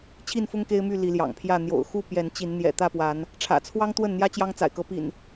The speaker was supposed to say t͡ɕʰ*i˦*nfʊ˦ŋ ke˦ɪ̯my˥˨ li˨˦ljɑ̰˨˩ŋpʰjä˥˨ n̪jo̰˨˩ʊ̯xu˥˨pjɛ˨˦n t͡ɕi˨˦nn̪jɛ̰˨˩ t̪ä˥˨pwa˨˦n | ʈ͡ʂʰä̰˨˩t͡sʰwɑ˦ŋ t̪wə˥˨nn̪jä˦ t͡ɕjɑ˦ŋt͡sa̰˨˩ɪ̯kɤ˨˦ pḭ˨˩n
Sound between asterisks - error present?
yes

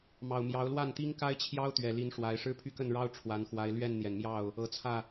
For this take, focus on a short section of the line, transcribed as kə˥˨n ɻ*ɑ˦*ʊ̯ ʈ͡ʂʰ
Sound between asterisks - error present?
no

